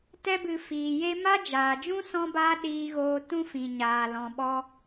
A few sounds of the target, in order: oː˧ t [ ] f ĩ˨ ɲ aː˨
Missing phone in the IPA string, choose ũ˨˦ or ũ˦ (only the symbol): ũ˦